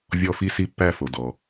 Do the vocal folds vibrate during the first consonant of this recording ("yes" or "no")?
yes